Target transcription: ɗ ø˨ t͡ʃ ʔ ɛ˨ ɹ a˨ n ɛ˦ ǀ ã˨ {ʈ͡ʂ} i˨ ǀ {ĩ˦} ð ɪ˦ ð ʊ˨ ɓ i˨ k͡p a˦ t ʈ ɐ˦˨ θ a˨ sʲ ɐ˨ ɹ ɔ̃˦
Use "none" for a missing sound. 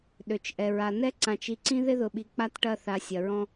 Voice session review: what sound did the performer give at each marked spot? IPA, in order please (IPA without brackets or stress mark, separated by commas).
t͡ʃ, ĩ˦